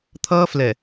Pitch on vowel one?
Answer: high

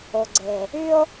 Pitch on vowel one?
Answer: low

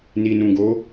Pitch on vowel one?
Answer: low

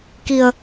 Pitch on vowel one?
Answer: low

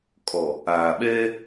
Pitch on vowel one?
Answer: low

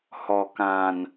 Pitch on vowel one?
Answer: low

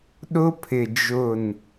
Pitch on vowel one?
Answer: high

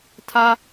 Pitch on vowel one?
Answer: high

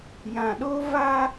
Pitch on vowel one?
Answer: low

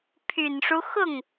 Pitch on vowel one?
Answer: low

